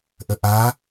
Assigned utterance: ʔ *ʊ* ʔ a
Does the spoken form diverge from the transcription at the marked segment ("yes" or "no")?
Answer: yes